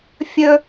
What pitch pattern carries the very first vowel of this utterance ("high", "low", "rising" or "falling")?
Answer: low